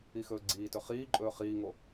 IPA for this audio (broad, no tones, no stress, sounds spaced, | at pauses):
i x ɵː ɡ͡ǀ iː t ɵ χ iː ǃʼ ɵː χ iː ŋ o